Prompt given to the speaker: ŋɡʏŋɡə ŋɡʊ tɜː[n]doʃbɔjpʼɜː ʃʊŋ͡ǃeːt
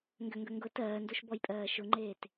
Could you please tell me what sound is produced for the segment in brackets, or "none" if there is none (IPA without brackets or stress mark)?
n